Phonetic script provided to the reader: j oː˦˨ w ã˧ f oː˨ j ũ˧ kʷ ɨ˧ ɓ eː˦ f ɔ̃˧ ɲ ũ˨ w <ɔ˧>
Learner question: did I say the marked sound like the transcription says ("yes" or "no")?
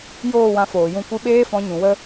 no